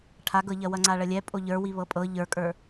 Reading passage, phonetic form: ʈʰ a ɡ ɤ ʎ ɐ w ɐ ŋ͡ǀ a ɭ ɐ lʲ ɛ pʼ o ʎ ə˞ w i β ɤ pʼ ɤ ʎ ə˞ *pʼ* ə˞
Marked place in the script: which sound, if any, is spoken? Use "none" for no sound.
kʼ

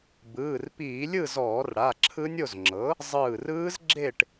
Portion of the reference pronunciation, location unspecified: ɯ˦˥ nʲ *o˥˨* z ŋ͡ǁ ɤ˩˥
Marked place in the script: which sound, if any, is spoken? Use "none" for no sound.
o˥˨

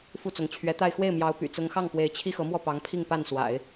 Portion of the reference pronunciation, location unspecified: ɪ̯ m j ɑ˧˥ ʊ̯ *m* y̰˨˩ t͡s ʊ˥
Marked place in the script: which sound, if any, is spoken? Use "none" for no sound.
p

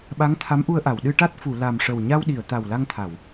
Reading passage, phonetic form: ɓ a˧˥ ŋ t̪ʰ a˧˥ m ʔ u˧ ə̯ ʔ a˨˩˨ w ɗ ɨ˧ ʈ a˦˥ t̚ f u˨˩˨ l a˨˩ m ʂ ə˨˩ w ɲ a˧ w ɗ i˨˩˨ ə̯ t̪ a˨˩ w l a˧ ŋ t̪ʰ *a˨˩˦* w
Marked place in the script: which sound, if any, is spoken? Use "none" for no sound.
a˨˩˨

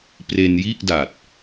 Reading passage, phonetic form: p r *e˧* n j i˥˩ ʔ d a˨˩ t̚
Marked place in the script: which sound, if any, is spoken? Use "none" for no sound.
e˧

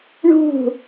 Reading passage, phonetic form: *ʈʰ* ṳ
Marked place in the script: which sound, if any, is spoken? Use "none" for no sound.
ɳ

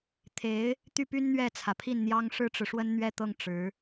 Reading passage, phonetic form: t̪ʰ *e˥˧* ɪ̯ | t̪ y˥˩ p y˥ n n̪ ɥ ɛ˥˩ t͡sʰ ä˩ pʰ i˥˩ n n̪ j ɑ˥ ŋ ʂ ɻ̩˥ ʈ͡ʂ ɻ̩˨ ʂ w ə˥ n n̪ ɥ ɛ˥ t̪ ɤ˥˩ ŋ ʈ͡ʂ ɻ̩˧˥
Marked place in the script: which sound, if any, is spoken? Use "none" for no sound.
e˧˥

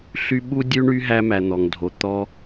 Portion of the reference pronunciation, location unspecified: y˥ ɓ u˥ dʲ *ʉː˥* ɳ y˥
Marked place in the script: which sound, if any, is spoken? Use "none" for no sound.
ʉ˥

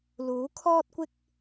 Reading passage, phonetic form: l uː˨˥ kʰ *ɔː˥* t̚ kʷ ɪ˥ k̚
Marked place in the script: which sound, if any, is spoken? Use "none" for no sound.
ɔː˥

